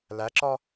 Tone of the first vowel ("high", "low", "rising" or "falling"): rising